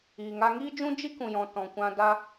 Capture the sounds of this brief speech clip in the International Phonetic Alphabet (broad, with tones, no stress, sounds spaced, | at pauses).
iː˨ ŋ a˧ ŋ iː˦ d͡ʒ ũ˦ d͡ʒ i˦ k ũ˨ j ɔ̃˨ t ɔ̃˨ kʷ ã˧ d a˦